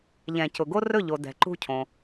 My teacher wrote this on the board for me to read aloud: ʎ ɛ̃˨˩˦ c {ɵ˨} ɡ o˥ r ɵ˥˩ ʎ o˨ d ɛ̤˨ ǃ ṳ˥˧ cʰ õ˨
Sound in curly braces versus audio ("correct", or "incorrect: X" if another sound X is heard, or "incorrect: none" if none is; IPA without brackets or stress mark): incorrect: ʊ˨